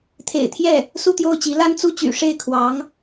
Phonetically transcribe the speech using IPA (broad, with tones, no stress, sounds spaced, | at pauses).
t̪ʰ ḛ˨˩ ɪ̯ t̪ʰ j ɛ˥˩ | s u˥˧ t̪ j o˥˩ ʊ̯ t͡ɕ i˧˥ l a˥ n t͡s u˥ t͡ɕ y̰˨˩ ʂ e˥˩ ɪ̯ kʰ w ɑ˧˥ ŋ